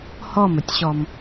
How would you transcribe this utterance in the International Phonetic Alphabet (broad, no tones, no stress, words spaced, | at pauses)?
hɔmətʲɕɔm